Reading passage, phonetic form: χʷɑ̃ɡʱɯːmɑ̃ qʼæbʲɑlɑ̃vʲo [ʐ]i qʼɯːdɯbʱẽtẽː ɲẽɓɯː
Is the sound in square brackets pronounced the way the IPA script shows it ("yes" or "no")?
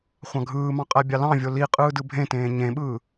no